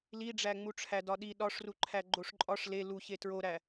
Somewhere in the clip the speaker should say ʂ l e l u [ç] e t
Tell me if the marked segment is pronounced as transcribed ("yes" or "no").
yes